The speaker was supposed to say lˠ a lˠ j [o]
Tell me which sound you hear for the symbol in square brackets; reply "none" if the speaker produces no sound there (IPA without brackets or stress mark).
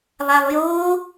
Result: o